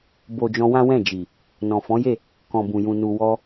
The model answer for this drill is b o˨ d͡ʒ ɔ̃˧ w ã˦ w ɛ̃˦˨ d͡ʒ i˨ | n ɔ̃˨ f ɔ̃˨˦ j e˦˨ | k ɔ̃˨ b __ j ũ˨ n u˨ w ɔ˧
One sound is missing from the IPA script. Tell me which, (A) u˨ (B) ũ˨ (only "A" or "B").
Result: B